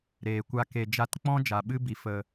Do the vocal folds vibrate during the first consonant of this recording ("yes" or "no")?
yes